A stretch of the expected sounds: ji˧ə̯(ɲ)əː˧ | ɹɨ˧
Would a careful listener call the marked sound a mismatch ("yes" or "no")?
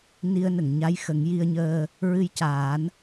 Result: no